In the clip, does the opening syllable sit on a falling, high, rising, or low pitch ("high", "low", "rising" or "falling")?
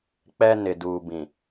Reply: high